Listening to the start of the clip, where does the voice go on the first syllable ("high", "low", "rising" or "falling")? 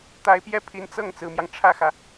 rising